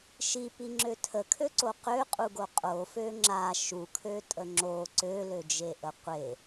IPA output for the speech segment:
ʃ i p i ŋ͡ǁ ø tʰ ə kʰ ø ǀ o q ø qʼ u ɡ o qʼ o f ø ŋ͡ǁ a ʃ u kʰ ø tʼ ə ŋ͡ǁ o ǀ ø l ø d͡ʒ e ʔ ə qʷ e

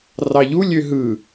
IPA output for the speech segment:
r ɑ ʎ u lʲ ø ɦ ɯ

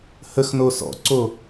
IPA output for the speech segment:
h ə x n o s ɔ̰ ǀ o

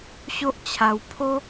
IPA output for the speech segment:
ɕ o˦ ʔ t͡ɕʰ a˧ w pʰ o˦

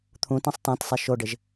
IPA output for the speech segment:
t̪ʰ ũ t ẽ sˤ t ã t sˤ e ʃ o ɖ ɪ ʒ

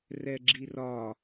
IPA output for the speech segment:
r ɛ ɡ͡ǁ i r ɒ

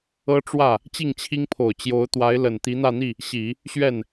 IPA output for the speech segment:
ɤ˥ ʈ͡ʂ w ä˥˩ | t͡ɕ i˥˩ ŋ t͡ɕʰ i˥ ŋ pʰ o˨˩ ʊ̯ t͡ɕ j o˧˥ ʊ̯ t̪ w a˧˥ ɪ̯ l ə˨˩ n t̪ i˧˥ n̪ ä˥˧ n̪ i˥˩ | ɕ i˨˩˦ | ɕ ɥ ɛ˥˩ n

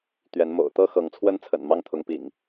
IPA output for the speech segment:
t̪ ɥ ɛ˨˦ n m o̰˨˩ ʊ̯ t̪ ɤ˦ x ɤ˨˦ ŋ t͡sʰ w ə˦ n t͡sʰ ə̰˨˩ n m ɑ˦ ŋ t̪ʰ ʊ˨˦ ŋ p ḭ˨˩ ŋ

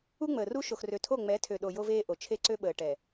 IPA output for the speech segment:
u˦ ŋ͡m əː˨ r u˦ ʃ o˨ x r ø˨ tʰ o˦˨ ŋ͡m ɛ˨˦ tʰ ø˨ ɗ o˨ j o˦ v eː˦ ʔ o˨ t͡ʃʰ e˦ ǀ ø˦ ɓ əː˨ ʈ ɛ˨

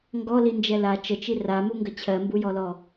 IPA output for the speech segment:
ŋ ɡ ɔ l i n d͡ʒ ɛ l a t͡ʃ ə t͡ʃ i r a m u ŋ ɡ ə t͡ɕʰ ɜ m b u j ɔ l ɔ

